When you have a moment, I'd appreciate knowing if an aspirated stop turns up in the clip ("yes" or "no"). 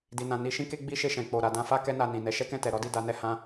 no